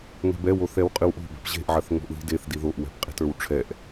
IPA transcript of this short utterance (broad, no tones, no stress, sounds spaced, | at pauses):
ŋ ɛ̤ b ɛ w o θ ɛ w qʼ ɨ w ʔ o̤ b ɛ̤ p ʑ e̤ ʔ ʕ ɐ θ ŋ o̤ ʔ ð i̤ d e θ d i ð o ʔ w ɛ̤ p qʼ i̤ t ə˞ w ʈ͡ʂʰ ɛ ʔ